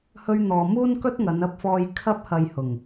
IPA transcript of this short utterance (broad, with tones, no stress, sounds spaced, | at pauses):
h ɵ˧ ɥ n̪ ɔː˨ m uː˥ n k ɵ˥ t̚ ŋ ɐ˨˧ n ɐ˧ p̚ f ɔː˧ j kʰ ɐ˧ p̚ h ɐ˨ j h ʊ˨˩ ŋ